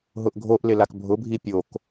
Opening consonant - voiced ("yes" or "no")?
yes